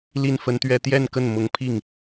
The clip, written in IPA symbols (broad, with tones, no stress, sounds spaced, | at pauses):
l i˥˩ n f ə˥ n t̪ ɥ ɛ˥ t̪ j ɛ˥˧ n k ə˥˩ n m ʊ˧˥ ŋ pʰ i˥˩ ŋ